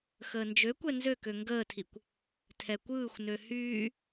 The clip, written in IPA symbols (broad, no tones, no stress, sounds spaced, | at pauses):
x əː n d͡ʒ ø kʷ ɛ n z ø k ø ŋ ɡ əː tʰ i kʷ | tʰ ɛ kʷ ɯː xʷ n ø h yː